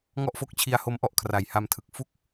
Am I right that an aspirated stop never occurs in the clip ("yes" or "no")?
no